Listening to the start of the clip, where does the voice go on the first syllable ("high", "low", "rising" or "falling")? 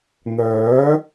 rising